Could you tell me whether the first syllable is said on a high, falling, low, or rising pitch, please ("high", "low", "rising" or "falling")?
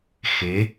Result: rising